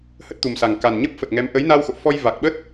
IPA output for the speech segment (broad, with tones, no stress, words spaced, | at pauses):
hə˦˥t̚t̪u˨˩msa˨˩ŋ ka˨˩nɲə˦˥p̚fə˨˩t̚ŋɛ˨˦m ʔə˨˦jna˧w xo̰˧˨fɔ˧j va˨˩k̚ɓə˦˥t̚